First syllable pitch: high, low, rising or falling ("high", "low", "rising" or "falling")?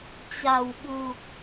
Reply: low